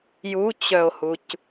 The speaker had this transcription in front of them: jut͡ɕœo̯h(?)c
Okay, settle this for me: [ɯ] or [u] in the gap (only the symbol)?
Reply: u